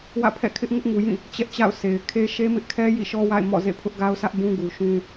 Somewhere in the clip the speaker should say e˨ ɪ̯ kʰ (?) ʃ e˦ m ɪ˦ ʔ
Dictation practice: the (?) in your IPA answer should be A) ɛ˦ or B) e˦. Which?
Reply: B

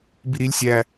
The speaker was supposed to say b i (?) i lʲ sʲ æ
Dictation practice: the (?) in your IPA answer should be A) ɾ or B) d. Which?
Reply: A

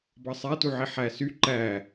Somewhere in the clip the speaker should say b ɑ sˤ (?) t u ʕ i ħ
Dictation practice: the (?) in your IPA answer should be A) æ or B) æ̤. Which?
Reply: A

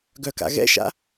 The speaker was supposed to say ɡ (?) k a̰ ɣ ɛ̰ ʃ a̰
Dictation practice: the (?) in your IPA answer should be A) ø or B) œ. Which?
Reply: B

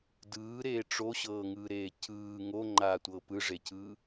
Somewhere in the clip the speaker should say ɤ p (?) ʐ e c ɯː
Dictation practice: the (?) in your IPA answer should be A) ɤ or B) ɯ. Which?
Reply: B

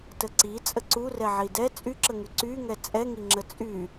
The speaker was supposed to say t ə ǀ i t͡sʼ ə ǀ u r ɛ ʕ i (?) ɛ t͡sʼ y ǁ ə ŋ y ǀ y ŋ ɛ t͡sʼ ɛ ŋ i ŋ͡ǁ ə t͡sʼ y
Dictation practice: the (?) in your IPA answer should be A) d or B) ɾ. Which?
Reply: A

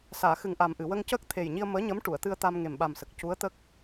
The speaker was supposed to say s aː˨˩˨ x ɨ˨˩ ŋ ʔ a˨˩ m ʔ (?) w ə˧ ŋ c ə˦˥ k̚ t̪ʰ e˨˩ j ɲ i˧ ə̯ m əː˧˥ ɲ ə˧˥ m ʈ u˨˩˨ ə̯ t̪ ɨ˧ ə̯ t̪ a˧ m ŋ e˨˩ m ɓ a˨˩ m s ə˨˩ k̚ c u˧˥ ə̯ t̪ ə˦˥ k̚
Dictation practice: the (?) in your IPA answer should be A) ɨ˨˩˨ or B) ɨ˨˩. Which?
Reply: A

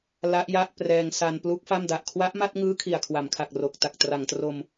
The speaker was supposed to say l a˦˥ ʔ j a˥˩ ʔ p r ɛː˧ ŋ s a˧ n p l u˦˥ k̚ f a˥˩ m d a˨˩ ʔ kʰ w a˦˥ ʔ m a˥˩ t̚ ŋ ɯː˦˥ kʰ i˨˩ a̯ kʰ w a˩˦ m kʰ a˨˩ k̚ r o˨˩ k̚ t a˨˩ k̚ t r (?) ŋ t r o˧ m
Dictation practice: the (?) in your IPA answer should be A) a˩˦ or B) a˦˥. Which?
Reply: A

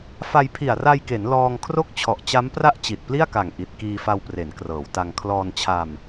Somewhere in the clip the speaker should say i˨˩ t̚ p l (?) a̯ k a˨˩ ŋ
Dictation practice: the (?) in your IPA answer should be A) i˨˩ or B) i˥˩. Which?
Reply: B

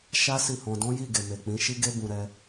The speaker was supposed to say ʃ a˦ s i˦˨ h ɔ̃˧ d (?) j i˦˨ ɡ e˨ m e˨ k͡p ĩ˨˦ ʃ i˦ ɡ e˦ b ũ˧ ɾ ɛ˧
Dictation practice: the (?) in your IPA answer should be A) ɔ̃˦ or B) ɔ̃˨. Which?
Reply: A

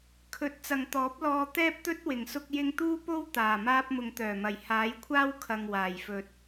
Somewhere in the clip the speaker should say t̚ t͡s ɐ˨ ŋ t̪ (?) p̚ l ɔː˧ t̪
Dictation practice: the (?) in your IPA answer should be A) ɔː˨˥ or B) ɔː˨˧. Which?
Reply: A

